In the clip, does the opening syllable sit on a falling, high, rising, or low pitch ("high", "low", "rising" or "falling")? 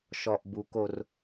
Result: low